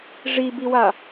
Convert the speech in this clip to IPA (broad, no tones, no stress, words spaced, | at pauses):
ʐibiwa